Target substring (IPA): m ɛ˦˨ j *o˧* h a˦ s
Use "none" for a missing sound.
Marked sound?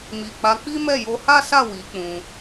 o˧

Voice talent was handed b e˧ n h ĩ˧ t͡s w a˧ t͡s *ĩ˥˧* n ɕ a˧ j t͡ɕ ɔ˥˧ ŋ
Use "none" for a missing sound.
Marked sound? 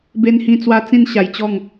ĩ˥˧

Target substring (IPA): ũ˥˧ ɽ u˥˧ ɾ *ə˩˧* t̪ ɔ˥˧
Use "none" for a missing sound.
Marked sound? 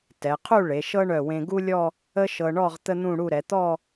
ɛ˩˧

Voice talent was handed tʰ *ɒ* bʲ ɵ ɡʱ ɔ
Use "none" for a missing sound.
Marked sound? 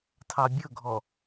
ɑ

